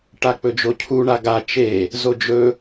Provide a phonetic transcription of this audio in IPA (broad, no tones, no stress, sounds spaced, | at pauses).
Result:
ʈ a k͡p ɵ d͡ʒ o cʰ u ɳ a ɡ a t͡ʃ e | z o d͡ʒ ɵ